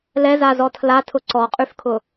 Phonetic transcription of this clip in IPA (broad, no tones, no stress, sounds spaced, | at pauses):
l ɛ z a z ɔ tʰ l a tʰ ʊ ǀ ɔ qʼ y f kʰ ʊ